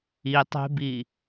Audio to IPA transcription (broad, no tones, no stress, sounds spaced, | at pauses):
i tˤ e̤ b i